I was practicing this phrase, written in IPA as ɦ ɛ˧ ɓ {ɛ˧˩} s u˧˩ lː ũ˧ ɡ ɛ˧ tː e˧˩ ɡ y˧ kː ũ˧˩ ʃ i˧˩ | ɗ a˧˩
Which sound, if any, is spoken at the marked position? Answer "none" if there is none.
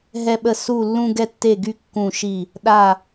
ə˧˩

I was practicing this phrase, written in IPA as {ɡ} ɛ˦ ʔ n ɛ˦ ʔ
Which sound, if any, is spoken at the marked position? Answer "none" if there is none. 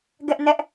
ɡ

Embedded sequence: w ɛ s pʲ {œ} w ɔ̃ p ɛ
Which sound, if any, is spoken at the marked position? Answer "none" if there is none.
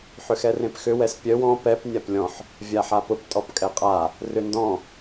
œ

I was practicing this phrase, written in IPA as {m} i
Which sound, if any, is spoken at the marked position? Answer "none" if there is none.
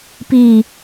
p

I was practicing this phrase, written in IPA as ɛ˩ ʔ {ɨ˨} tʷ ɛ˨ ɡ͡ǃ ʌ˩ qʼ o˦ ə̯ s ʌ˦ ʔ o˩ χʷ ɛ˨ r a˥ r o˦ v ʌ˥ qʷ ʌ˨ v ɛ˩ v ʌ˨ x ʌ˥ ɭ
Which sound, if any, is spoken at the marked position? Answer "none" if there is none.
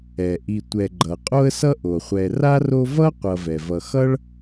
i˨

